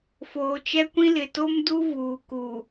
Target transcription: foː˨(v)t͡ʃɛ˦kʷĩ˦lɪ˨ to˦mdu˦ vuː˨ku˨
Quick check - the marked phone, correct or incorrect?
incorrect